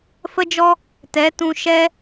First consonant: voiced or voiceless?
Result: voiceless